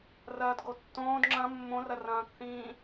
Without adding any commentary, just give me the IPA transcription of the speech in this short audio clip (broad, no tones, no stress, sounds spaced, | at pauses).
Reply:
r ɐː d ɡ o tː õː d ŋ͡ǁ ɐ̃ mː õ r ɐ r ɐ̃ː k θ ĩː